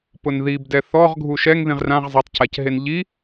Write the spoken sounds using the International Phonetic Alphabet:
pʊnðibdɛ θɔʁ ɡʱuʃɛŋ ðĩʁrãʁ zˤɛtˤcacɦen ʎi

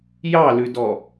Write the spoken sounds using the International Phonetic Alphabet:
jɑlʉdɔ

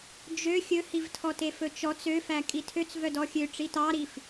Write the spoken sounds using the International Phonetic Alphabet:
d͡ʒø xʲɵhivtʰɔte fɵt͡ʃɔt͡s øfæ kʼitʰøt͡s vœdɔxʲø ʈ͡ʂitɑɾif

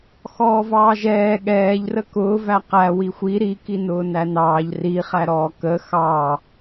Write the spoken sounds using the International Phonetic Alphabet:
xɔːvɑːʒɛː ɠɛːʎrə kʊːvæ qæ wixʷi ɾikinʊː nænɑːʎ riχæɾɔː kə xɑ

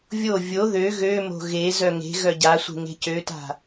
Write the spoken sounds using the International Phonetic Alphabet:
vʲo vʲo ðø ɣømo̤ ɣe zœŋe̤ɣœ ɟasʷe̤ ŋe̤cøta̤

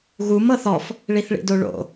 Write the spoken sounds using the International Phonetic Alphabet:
ɣum ɤθɔf | ɭiθɭḭdoɭo̰

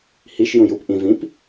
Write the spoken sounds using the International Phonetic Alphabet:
hiʃ jũjup ʔĩ vĩp

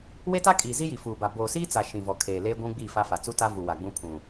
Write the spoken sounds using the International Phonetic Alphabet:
we˦ta˦kʼiː˨ zi˦ji˨fuː˨ba˨ boː˨siː˦t͡sa˨ ʃĩ˨vɔ˨kʰeː˨ leː˦ɡʷũ˦ɡ͡bi˦˨fa˦ fa˨t͡su˦ta˦vu˨ wa˨ɡ͡bũ˦pʰũ˨

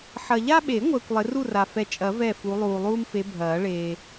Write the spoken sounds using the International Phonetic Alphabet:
ħɐ˨ʎa˦ɓe˨˩˦ŋʷəː˨kʷ lˠɪ˨˦ru˥˨ra˨fɛ˨˦ t͡ʃʼɐ˨˩˦ vɛ˥˨fu˨˦ lˠuː˨lˠuː˦mfe˨˦ bʱɐː˨˩˦ ɭeː˨

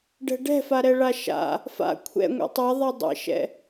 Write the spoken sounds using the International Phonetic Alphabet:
ɖɛ̤ɖɛ̤faɾɛ ɭaʃa̰ | fa̰ kʷʰɛ̰ŋʷɛ̰ tˤɛðˤɛ dˤḛʃɛ̰

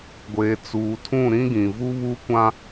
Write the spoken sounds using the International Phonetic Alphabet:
ɡʷeː˨ t͡suː˨tʰũ˦˨ɾĩ˦ɡĩ˨ vu˦βuː˦kʷã˦

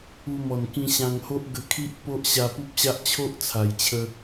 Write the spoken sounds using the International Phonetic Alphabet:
u˧mɔ˨˩n kĩ˧ɕã˧ŋho˦ʔ ɡə˧kʰi˦ʔpo˦ʔ ɕa˧pu˦p̚ɕa˦ʔ t͡ɕʰo˦ʔt͡sʰa˨˩jt͡ɕʰə˧

